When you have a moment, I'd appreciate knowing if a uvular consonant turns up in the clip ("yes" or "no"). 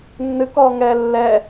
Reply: no